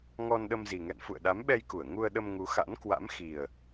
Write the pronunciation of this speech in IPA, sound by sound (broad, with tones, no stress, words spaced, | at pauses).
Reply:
ŋɔ˧nɗə˧mzi˨˩ŋɛ̰˧˨n fṵ˧˨ə̯ɗa˨˦mɓɛ˧jku˧˩ə̯ ŋu˧ə̯ɗə˧mŋu˨˦ xa̰˧˥nkwa̰˧˥m xi˨˩ə̯